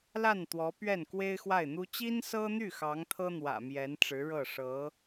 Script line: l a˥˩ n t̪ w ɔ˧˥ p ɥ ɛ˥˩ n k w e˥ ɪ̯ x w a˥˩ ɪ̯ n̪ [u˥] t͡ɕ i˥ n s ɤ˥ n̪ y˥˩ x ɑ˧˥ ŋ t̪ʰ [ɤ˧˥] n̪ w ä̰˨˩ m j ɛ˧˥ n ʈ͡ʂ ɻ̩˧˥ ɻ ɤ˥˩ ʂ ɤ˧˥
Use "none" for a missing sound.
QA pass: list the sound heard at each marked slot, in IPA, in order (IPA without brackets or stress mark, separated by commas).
u˥, ɤ˥